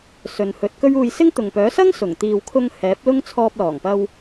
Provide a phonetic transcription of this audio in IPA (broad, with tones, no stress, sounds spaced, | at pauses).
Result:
s ɵ˨˧ n h ɵ˨˥ t̚ k ɵ˥ ɥ uː˧ j s ɪ˥ ŋ t̪ ʊ˨ ŋ p œː˨˥ s ɐ˥ ŋ s ʊ˨˩ ŋ t̪ iː˨ w kʰ ʊ˧ ŋ h ɛː˨˥ p̚ l ʊ˥ ŋ t͡sʰ ɔː˧ p̚ l ɔː˨˩ ŋ p ɐ˧ w